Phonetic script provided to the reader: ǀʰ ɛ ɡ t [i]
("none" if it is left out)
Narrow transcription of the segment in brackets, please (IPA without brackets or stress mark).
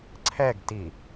i